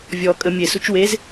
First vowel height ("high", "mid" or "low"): mid